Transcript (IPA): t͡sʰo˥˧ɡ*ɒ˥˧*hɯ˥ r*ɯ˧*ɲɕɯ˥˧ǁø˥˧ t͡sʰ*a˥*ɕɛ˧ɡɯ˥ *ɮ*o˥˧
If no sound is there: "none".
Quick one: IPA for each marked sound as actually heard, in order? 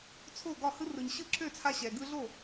ɒ˥˧, ɯ˧, a˥, ɮ

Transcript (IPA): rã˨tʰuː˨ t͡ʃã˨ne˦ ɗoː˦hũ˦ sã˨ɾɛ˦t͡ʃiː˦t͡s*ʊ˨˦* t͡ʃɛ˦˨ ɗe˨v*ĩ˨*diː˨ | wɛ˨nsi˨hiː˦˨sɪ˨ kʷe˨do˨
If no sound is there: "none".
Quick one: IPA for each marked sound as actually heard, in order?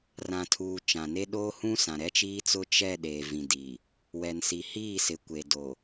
ʊ˦, ĩ˨

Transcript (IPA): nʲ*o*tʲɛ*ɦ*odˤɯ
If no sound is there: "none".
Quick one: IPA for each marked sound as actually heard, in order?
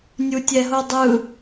u, ɦ

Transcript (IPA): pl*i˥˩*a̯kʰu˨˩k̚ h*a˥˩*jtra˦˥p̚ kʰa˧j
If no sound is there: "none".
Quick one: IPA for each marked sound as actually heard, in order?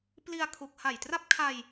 i˧, a˨˩

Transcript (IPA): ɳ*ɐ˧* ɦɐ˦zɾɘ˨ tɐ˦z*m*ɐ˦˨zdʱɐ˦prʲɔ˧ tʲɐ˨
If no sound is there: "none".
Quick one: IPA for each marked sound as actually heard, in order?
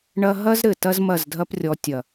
ɐ˦, m

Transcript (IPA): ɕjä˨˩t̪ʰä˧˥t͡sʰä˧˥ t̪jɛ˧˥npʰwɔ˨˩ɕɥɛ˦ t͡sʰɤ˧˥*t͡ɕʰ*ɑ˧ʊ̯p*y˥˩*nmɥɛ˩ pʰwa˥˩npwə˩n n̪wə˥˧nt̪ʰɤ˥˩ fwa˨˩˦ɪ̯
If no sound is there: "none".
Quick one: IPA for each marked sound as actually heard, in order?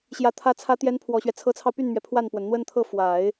t͡sʰ, y˥˩

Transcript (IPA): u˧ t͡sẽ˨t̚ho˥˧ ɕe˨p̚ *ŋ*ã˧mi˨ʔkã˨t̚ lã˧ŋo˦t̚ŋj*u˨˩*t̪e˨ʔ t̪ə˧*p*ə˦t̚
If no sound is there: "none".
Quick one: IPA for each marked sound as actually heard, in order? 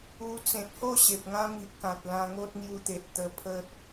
ŋ, u˧, pʰ

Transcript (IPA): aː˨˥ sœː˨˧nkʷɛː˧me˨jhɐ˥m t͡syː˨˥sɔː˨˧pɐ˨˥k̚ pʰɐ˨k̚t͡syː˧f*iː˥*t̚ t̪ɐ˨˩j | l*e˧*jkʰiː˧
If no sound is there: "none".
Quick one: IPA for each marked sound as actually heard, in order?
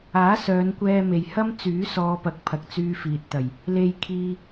iː˨, e˧

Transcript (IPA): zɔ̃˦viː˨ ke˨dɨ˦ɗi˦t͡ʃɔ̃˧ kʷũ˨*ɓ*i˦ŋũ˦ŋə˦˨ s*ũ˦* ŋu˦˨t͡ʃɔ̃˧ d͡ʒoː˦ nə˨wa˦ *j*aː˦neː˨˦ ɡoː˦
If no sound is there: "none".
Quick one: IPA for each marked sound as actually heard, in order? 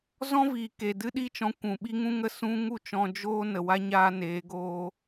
ɓ, ũ˦, ɲ

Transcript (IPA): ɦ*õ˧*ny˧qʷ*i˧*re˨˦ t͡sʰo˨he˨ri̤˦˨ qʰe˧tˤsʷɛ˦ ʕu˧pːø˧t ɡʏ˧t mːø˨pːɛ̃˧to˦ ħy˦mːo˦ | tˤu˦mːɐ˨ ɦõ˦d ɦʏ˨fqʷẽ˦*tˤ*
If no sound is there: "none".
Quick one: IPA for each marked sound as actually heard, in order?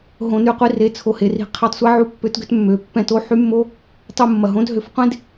õ˧, i˧, d

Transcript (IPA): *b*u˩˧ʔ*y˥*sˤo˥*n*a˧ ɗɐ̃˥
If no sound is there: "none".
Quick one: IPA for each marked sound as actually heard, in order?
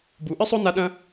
b, ɨ˥, n

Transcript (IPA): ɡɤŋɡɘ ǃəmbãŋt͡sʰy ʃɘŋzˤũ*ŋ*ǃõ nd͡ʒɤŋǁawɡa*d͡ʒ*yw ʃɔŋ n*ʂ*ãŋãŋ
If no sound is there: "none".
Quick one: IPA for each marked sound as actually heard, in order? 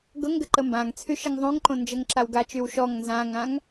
ŋ, t͡ʃ, z

